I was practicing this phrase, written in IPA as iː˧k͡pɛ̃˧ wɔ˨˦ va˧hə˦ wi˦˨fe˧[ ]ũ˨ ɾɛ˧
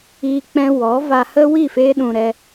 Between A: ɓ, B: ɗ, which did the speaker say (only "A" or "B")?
B